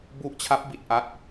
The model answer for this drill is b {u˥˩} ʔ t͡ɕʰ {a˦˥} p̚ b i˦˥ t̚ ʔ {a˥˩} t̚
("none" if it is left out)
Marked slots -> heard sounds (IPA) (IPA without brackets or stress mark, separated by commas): u˦˥, a˦˥, a˥˩